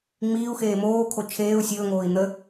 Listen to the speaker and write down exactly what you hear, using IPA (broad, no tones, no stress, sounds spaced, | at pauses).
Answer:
ŋ͡m iː u̯ x eː m oː kʰ o t͡ʃʰ eː u̯ sʲ ɵː ŋ oː i̯ n̪ ə